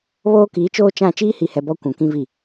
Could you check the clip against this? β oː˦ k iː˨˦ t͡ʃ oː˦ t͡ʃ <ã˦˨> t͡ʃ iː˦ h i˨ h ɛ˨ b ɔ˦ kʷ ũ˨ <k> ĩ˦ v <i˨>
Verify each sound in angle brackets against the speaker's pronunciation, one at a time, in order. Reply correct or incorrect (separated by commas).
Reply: correct, correct, incorrect